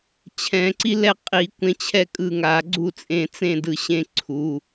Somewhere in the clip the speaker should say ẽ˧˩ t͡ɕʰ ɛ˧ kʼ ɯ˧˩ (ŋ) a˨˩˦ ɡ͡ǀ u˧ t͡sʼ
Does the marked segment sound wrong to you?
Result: no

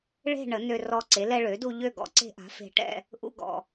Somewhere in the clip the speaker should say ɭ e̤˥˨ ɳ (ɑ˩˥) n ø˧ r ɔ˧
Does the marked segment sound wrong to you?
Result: yes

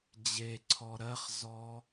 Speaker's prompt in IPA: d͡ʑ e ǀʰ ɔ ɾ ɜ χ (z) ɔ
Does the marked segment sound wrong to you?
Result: no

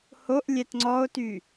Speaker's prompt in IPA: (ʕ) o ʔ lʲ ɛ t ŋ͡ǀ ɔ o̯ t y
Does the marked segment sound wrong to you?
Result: yes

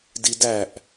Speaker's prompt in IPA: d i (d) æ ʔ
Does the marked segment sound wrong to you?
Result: no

